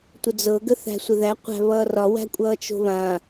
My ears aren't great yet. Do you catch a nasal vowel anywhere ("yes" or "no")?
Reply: yes